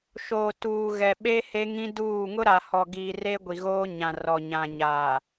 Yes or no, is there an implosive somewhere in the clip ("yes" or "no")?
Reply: yes